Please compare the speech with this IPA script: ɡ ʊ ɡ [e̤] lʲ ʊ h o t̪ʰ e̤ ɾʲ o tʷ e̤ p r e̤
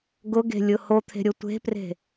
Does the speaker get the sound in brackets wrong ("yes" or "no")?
no